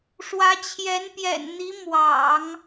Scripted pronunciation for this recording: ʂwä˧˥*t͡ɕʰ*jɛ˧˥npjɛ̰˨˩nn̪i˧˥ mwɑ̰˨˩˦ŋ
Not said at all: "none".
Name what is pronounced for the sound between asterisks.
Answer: t͡ɕʰ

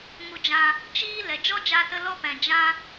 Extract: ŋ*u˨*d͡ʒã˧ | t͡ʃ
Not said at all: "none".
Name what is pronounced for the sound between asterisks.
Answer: u˧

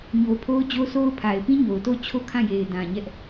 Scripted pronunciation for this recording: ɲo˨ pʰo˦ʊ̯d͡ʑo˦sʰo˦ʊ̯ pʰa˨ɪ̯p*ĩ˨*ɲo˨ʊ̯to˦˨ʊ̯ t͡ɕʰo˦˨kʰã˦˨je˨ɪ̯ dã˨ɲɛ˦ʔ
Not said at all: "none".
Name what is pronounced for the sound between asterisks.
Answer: ĩ˦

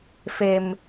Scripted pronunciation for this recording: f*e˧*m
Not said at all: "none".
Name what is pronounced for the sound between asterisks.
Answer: e˧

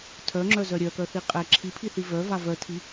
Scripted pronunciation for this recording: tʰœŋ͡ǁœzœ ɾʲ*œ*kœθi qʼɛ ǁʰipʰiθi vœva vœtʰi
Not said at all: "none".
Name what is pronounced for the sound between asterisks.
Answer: œ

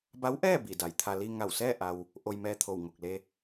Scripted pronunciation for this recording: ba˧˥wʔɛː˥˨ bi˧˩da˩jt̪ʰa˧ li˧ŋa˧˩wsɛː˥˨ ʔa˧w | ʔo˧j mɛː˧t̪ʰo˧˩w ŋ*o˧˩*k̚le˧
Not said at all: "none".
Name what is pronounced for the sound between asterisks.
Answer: o˧˩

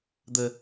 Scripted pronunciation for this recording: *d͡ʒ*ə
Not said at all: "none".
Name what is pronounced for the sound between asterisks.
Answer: d̪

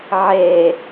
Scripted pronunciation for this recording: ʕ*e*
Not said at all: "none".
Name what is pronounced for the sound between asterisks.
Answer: e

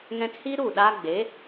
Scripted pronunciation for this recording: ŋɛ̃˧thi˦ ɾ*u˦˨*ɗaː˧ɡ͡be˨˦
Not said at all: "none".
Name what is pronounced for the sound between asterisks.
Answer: u˦˨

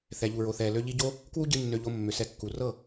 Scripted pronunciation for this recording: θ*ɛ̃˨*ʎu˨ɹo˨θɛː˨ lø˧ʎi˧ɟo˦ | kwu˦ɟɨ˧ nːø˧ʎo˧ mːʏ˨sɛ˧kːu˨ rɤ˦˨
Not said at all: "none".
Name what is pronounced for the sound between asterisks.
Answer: ɛ˨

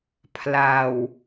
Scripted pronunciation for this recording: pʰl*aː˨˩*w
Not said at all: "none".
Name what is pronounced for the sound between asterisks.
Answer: aː˨˩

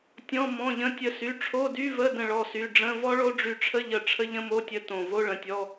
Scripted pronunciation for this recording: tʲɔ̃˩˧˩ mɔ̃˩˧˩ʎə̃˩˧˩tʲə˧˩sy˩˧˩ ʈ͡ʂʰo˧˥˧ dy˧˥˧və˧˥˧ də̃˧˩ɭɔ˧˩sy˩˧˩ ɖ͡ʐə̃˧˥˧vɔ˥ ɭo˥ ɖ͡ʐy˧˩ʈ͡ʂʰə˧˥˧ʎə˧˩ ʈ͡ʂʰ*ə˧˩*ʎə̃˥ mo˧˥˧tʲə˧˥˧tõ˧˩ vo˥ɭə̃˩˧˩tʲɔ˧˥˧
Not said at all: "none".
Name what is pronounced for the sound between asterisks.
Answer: ə˥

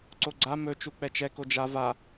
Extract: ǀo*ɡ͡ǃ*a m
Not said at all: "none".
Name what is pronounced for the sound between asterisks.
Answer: ɡ͡ǀ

